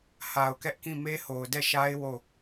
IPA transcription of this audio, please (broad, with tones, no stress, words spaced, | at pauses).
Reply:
ha˨ʊ̯kɛ˦ʔkĩ˦˨ me˦ho˨ʊ̯dɛ˦˨ʃa˦ɪ̯ wo˦˨